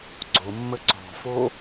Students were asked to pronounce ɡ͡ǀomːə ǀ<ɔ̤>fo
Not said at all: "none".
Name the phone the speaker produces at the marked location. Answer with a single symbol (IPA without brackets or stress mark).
ɔ̤